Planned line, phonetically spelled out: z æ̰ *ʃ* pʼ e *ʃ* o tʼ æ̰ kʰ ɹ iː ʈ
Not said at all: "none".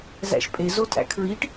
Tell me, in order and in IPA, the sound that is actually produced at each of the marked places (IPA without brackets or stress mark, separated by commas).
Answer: ʃ, z